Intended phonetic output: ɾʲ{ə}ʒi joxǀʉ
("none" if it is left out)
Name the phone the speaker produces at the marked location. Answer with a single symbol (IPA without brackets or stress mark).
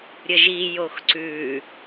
ə